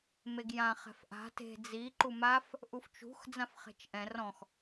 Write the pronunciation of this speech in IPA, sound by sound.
m e ɡ j ã χ ɛ̤ f ʔ a̤ t e̤ d͡z i ǃ u m a f | ʔ u f t͡ʃ ṳ x d͡z ã f χ e̤ t͡ʃ ʔ ɛ̃ r ɔ̃ x

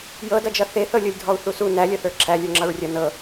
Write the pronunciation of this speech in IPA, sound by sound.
j ɤ d ʌ d͡ʒ ʌ θ e θ ɤ lʲ ɤ lʲ dʱ ɔ u̯ θ u s u n æ lʲ ʌ θ ə˞ ǁʰ æ lʲ ə˞ ŋ͡ǁ ʌ ɹ rʲ ʌ n ɤ

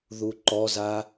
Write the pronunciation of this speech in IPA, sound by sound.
ð u ǃ ɔ z a

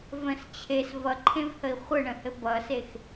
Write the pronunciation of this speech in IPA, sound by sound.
v ə̃ s t͡ɕʰ e s v ʌ ǃʰ ẽ v h ə i̯ χʷ ə ɳ ə̃ h ɘ b ʌ s e x

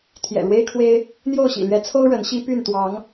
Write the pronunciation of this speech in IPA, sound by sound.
t̪ʰ j ɛ̰˨˩ ɻ w e˦ ɪ̯ kʰ w e˦ ɪ̯ | n̪ j o˥˨ ʊ̯ ɕ ḭ˨˩ l ɥ ɛ˨˦ t͡sʰ o˦ ʊ̯ ɻ ə˨˦ n ɕ i˦ p y˥˨ n t̪ w ɑ˨˦ ŋ

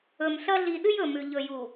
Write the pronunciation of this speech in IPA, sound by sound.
ɵ˨ m ɬ ɐ˦ ɮ i˨ ɗ ɨ˦ j ɵ˨ m ʉ˨ ʎ ɵ˨ j u˨

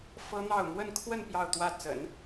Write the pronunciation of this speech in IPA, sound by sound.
f ɤ˥ n̪ ɑ˥˧ ʊ̯ m w ə˥˧ n kʰ w ə˥˧ n p j ɑ˥˧ ʊ̯ t̪ w ä˥˩ t͡s ə̰˨˩˦ n

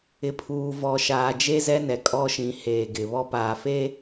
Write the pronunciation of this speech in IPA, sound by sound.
ɪ˨ pʰ uː˨ v ɔ˨ ʃ aː˨ d͡ʒ e˦ z ɛ˦ n ɛ˨ kʼ ɔ˦ ʃ ĩ˨˦ h eː˨ ɡ ɪ˨ β ɔ˦ p aː˨ f e˦

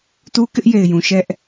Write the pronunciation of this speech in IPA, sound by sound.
t u˦ k ɪ˦ ʔ j e˨ ɪ̯ j ũ˨ ʃ ɛ˦ ʔ

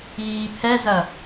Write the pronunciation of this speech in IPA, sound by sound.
iː pʰ ɛ z ɐ

